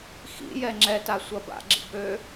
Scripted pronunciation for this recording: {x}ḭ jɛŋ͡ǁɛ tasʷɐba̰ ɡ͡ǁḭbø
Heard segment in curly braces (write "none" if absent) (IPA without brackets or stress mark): x